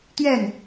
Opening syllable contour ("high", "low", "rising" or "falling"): falling